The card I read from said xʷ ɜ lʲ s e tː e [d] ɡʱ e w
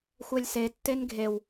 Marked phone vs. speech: incorrect: n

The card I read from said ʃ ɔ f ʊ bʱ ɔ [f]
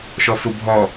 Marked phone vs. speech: incorrect: none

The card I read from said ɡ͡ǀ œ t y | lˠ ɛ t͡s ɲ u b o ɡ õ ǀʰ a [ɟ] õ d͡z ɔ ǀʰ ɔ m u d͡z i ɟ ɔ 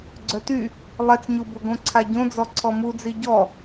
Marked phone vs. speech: correct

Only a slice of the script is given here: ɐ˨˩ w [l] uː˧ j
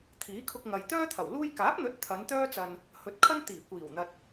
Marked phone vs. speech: correct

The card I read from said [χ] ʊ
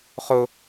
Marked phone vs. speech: correct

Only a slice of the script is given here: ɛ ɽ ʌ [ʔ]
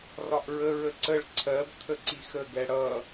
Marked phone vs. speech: incorrect: none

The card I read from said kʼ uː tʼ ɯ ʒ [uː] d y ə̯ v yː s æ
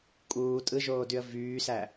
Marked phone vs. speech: incorrect: oː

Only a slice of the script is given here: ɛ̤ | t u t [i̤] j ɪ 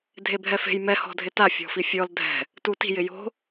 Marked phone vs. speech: correct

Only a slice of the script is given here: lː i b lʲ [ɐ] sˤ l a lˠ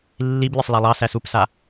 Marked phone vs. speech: correct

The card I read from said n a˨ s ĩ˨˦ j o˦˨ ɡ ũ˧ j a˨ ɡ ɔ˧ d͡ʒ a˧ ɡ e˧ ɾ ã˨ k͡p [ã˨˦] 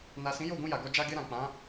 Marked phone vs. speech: correct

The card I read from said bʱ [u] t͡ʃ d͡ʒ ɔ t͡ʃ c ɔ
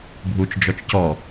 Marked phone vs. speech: correct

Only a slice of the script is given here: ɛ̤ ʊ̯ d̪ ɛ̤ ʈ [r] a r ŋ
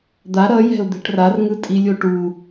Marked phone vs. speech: correct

